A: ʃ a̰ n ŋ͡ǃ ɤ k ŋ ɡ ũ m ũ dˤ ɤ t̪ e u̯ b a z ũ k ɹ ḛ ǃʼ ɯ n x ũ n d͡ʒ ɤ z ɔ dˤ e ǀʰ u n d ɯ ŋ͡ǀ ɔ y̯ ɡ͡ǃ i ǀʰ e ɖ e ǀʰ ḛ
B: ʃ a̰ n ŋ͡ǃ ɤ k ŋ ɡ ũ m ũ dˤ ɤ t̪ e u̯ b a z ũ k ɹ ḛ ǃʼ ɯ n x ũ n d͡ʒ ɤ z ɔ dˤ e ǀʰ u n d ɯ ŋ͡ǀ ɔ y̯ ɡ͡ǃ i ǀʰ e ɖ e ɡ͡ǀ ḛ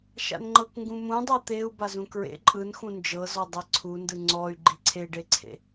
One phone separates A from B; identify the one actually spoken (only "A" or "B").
A